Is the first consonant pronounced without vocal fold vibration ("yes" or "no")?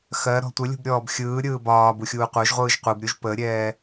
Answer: yes